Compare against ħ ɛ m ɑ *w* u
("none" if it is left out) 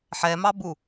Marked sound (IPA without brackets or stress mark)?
b